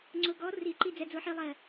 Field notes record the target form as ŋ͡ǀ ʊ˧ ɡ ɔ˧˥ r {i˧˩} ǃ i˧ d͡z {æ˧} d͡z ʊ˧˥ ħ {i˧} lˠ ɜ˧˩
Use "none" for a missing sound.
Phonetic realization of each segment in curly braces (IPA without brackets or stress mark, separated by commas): i˨˩˦, ɛ˧, i˧